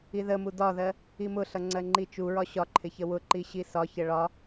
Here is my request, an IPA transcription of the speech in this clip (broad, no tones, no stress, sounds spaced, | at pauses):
i ð ə m u d ɒ ð ɜ | i m ʊ ɬ ʌ ŋ͡ǀ ɜ ŋ͡ǃ i t͡ʃ u ɹ ɒ ɕ ɒ ǃʰ ɪ ç ə w ʊ ǃ i ɕ i s ɒ ç ə ɭ ɒ